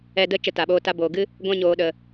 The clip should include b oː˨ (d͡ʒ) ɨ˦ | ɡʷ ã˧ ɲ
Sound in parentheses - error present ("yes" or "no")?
yes